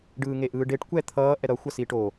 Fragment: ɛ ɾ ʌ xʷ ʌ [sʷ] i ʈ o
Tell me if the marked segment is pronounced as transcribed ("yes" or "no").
no